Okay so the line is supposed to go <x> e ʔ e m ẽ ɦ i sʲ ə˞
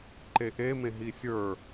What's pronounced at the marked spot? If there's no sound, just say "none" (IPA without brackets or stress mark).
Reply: ǃ